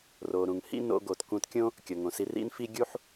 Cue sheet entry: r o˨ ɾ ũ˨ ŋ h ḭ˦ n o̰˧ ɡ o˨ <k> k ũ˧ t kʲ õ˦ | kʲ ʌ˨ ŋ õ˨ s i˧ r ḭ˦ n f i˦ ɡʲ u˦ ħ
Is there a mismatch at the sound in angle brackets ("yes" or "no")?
yes